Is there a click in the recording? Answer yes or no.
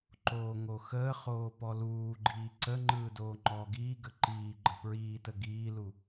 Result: yes